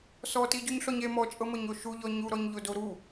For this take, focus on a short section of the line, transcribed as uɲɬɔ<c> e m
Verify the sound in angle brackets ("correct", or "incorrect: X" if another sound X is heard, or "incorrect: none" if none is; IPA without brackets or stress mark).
incorrect: ɲ